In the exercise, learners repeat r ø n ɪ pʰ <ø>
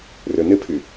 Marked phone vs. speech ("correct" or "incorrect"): incorrect